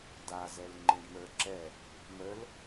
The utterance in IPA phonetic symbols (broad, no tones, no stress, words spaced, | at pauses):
dazɛl ŋ͡ǃẽɖmə˞ǁɛ | məl